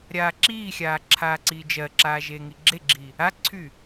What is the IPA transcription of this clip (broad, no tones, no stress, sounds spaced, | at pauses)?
ɾʲ aː ǁ iː xʲ aː ǁʰ aː ǀ iː d͡ʒ ɜ ǁ aː ʒ eː ŋ i ɡ͡ǁ e ɡ͡ǁ i | a ǀʰ y